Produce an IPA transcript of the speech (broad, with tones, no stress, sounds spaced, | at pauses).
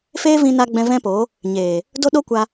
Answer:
f eː˦ v ĩ˧ n a˧ ɡ͡b ɛ̃˧ v ɛ̃˦ p o˨˦ | ɲ eː˨ | d o˦ ɗ o˦ kʷ a˧